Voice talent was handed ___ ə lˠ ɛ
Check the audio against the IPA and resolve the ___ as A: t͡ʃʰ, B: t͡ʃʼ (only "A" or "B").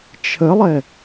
A